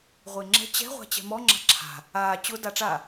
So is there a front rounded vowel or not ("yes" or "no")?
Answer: no